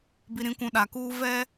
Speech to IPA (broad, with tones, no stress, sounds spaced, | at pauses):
b i˨ ɾ ĩ˨ kʷ ũ˨ ɗ a˨ k uː˦ v ɛ˦